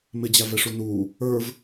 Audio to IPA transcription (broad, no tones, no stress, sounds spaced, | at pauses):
m ɪ d͡ʑ æ v ɛ ʂ u n u | ə˞ v